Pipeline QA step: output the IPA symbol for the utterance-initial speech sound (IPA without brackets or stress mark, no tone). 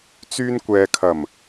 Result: t͡s